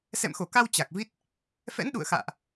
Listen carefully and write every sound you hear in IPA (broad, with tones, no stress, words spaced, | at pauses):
sɛ̰˧˨mxo˧˩ka˧w t͡ɕa˨˩k̚ vi˦˥t̚ | fɛ̰˧˥nɗṵ˧˨ə̯xa̰ː˧˨ʔ